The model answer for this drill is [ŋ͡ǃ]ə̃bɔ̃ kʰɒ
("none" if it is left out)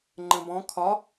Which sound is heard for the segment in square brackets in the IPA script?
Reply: ŋ͡ǃ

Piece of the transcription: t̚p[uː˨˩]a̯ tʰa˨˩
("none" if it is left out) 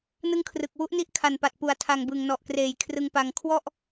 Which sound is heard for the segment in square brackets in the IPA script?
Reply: u˨˩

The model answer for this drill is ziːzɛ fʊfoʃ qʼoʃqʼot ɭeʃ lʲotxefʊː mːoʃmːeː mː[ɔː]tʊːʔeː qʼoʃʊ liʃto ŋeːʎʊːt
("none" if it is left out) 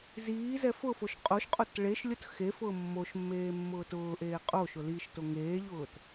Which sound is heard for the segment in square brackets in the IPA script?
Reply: ʊː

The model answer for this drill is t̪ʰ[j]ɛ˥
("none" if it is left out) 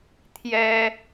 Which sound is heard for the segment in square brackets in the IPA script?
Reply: j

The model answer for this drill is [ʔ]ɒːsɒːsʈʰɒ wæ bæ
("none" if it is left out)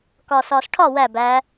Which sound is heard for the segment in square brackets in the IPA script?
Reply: k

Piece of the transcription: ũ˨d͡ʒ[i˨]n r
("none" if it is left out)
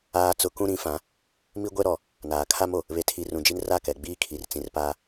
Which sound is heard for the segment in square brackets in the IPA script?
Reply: i˦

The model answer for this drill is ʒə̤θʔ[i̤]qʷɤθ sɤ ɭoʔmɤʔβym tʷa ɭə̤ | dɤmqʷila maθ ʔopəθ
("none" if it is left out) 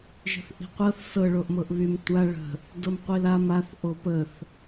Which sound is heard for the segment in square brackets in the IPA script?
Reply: i̤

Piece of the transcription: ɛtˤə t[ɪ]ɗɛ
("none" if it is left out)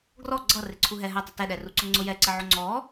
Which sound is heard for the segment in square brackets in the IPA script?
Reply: ɛ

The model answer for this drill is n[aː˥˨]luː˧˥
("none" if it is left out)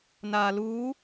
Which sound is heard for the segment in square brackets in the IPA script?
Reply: aː˧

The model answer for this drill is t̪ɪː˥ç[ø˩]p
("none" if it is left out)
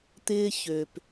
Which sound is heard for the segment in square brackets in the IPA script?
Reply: ø˩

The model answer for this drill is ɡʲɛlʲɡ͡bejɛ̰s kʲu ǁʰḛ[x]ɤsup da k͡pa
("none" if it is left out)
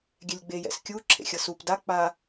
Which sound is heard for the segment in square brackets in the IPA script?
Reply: xʲ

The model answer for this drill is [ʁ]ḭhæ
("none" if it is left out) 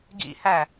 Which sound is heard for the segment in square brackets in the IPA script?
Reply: ɡ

